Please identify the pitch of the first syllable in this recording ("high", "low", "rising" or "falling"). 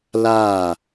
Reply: falling